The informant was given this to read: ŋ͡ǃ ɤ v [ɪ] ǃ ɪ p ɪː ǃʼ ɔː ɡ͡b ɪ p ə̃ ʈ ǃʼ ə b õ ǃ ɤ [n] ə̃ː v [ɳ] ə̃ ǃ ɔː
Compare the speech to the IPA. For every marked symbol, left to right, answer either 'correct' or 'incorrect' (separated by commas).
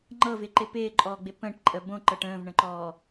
correct, incorrect, correct